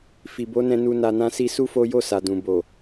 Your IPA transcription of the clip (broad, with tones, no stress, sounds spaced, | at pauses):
f i˨ b o˨˦ n ɛ̃˧ n u˨ n a˨ n ã˧ s i˧ s u˦ f o˦ j o˦˨ s a˨ d ũ˨ b o˨